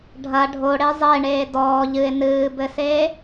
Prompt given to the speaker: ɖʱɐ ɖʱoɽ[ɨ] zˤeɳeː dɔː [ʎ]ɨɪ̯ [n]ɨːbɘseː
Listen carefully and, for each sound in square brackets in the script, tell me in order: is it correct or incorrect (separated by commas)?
incorrect, correct, correct